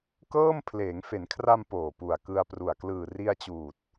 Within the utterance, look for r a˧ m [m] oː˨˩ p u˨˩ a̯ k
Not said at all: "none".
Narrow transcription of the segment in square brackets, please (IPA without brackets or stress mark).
p